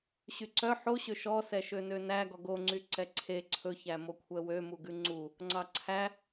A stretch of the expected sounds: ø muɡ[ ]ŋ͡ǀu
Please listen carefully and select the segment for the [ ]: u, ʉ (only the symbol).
ʉ